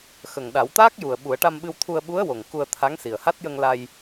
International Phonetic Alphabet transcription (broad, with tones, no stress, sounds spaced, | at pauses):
x ə˨˩ ŋ ɗ a˨˩˦ w t̪ aː˦˥ k̚ j u˨˩ ə̯ ɓ u˨˩˦ ə̯ ʈ a˧ m ɓ ɨ˧ w t̪ʰ u˧ ə̯ ɓ u˧˥ ə̯ w o˨˩ ŋ k u˧ ə̯ t̪ʰ a˧˥ ŋ s i˨˩ ə̯ h a˦˥ t̚ j ə˧ ŋ l a˧ j